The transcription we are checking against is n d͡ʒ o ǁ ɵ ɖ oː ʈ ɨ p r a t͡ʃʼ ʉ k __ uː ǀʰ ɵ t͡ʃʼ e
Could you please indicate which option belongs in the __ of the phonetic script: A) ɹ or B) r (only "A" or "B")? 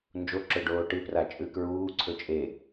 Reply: A